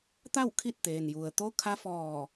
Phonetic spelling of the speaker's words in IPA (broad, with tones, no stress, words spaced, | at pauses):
t̪a˥˨w kʰi˥˨t̚t̪eː˩nju˩ə̯ t̪o˧˥kʰa˧˥fɔː˧˩